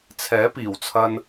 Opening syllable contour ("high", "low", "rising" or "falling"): rising